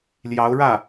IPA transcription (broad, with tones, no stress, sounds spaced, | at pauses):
l j ɑ˧˥ ʊ̯ ɻ ä˥˩